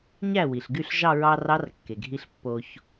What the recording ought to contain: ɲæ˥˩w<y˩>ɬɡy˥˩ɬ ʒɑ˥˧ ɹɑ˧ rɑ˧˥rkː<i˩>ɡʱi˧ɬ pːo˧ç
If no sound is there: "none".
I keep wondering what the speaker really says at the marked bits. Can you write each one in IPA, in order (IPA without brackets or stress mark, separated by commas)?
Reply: i˩, e˩